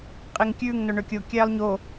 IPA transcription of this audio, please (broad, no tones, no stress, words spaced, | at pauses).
qʼeŋkʲʉːŋ noɳøkʲo kʲæːlˠɲo